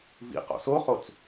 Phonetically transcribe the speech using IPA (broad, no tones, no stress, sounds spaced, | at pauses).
v ḭ q o̰ s o χ o t͡s